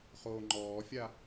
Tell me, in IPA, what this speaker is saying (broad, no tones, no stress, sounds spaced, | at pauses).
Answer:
χ oː ŋ͡ǃ ɔː fʲ a